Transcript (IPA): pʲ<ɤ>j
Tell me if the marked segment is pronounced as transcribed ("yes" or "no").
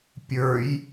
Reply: no